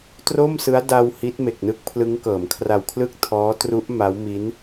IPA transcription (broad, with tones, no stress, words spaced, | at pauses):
tro˥˩msɯ˦˥a̯ da˧w hi˦˥t̚me˨˩k̚ nɯ˦˥k̚pʰlɯ˦˥ŋkɤː˩˦m kʰra˨˩wkʰlɯ˥˩k̚ tʰɔː˦˥tru˦˥ʔ ma˦˥wmi˦˥n